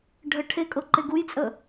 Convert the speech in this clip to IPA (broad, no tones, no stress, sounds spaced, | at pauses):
ɖʱ ə ʈʰ e kʼ ɤ ǃ e ɡ u j t͡sʼ ə